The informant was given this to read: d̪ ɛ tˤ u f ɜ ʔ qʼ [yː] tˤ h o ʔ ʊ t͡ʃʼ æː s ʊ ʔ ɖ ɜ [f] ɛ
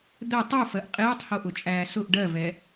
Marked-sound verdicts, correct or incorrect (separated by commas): incorrect, incorrect